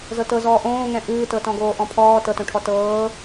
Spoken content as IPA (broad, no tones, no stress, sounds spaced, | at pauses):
z ɤ t ɤ z ɔː ʔ õː ŋ ɛ̃ ʔ ɨː t ɤ t ɔ̃ ɡ oː ʔ ɔ̃ pʰ ɔː t ɤ t õ ʈʰ ɔ t ɤː